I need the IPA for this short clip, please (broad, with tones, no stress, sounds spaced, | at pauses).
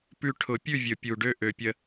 p ʉ˦ ʈʰ ʊ˨˩˦ pʲ ʉ˥˩ vʲ ʊ˨˩˦ pʲ u˨˩ ɖ ø˦ ʔ ø˨˦ pʲ ə˦